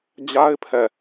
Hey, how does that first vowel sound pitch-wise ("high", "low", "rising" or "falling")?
high